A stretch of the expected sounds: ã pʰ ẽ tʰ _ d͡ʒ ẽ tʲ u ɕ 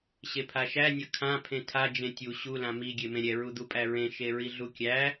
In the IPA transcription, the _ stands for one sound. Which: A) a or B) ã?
A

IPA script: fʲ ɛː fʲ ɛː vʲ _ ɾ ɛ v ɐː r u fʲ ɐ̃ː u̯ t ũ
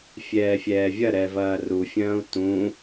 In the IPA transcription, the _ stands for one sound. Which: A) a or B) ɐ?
B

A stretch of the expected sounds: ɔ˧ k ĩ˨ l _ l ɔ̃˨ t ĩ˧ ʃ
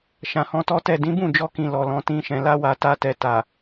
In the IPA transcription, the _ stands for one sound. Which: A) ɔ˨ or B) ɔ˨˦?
A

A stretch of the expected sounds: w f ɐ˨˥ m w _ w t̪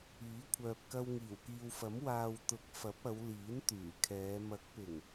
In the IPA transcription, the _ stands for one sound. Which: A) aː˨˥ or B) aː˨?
B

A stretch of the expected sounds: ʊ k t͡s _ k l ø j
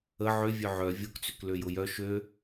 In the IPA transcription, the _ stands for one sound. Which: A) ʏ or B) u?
A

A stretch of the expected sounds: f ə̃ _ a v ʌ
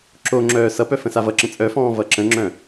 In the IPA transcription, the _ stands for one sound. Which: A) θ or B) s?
B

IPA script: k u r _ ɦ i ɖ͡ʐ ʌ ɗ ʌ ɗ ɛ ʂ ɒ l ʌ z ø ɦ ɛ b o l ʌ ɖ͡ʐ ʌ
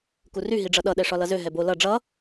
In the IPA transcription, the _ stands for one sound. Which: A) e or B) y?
B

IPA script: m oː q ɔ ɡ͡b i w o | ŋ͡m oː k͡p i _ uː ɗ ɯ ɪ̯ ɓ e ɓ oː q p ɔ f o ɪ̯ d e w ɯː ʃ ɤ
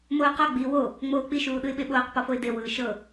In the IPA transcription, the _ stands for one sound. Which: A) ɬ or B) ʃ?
B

